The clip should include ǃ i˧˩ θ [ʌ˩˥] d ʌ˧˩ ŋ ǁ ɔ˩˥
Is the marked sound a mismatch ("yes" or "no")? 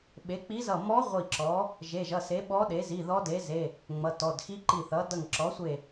no